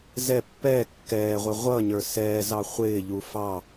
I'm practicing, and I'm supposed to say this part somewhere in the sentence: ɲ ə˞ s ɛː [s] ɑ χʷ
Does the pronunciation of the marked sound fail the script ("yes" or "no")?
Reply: yes